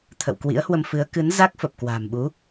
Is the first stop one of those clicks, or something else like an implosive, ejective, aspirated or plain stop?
aspirated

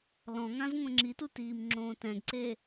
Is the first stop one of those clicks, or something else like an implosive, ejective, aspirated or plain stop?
click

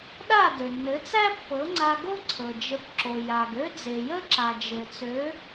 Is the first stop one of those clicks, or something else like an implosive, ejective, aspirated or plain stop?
implosive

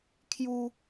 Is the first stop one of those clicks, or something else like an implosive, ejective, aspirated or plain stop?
aspirated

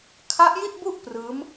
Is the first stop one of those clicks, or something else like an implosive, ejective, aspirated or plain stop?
aspirated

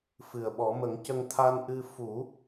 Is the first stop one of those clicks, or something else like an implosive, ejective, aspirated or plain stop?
implosive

